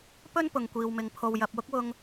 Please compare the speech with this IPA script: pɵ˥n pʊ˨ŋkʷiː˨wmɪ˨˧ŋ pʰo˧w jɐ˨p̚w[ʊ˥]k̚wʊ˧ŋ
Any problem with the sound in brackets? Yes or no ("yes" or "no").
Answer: no